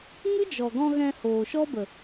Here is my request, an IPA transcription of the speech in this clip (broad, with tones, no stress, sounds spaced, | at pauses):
ŋ ɨ˦ d͡ʒ ɔ˨ ɡ ɔ̃˧ ɣ ɛ̃˧ h oː˨ ʃ ɔ˦ b ə˨